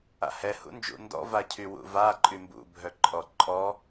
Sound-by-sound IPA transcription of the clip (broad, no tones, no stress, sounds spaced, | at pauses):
a̰ h ɛ h ṵ n d͡ʒ ṵ n d ɔ̰ v a cʰ y w ṵ v a ǃʼ y m b ṵ bʱ œ ǃʼ ɔ ǃʼ ɔ